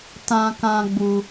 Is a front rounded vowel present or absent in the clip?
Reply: absent